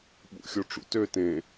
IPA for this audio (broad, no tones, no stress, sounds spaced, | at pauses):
ɓ ṵ xʲ o ʈ͡ʂ ṵ t ø t ẽ